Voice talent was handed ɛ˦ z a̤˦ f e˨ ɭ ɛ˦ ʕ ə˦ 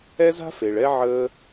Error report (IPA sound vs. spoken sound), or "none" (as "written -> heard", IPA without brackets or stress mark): ə˦ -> əː˦